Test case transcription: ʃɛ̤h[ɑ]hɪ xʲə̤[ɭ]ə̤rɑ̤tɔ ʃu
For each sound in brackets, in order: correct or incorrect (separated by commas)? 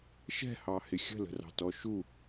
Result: correct, incorrect